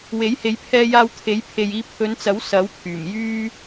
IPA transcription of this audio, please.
w e˨˥ j h e˨˧ j pʰ ɛː˧ j aː˧ w t̪ʰ e˨˥ j pʰ e˨ j iː˧ pʰ ɵ˨˧ n t͡s ɐ˨˥ w s ɐ˨˥ w pʰ yː˨˩ m j yː˥

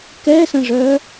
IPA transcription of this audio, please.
k ɛ s ə̃ ʐ œ

